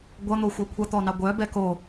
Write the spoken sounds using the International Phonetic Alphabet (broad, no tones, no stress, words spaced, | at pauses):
ɡʷʌn̪oxʷœ kʷʰʌt̪ɔnɑ ɡʷœ bɛko